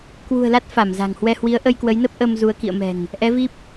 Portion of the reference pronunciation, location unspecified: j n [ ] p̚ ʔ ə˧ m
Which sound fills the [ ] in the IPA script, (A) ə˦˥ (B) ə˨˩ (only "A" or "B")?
A